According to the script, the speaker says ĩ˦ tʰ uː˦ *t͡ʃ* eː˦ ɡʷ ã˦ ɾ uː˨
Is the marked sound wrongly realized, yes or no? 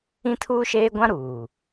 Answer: yes